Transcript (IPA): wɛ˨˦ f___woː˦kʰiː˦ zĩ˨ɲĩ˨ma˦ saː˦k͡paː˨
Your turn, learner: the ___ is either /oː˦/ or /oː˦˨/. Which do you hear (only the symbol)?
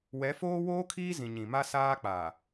oː˦